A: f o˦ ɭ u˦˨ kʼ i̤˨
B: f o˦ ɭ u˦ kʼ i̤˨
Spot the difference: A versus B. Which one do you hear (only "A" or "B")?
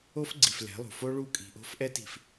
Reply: A